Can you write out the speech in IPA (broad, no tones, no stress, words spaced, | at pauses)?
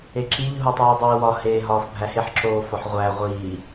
eǁiʎ ɦutˤuːdˤiːwɒ heːɦɒːfbʱæheħ ǁoːfɒħʁʷæ ʁʷiː